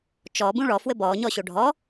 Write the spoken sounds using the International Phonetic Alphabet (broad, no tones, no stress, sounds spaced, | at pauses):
t͡ʃ ɔ b ũ ɭ ɔ f w ɘ b ɔː ɲ ɔ ɕ o ɖʱ ɔ